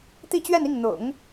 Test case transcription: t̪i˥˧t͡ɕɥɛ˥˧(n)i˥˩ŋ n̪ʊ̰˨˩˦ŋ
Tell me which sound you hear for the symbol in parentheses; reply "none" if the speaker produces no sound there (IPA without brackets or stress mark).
n